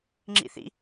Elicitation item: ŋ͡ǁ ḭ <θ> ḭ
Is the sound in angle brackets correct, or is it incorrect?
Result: correct